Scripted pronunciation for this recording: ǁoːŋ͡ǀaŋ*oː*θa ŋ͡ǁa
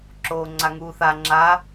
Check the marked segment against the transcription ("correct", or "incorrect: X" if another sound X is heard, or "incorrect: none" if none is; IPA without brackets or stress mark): incorrect: uː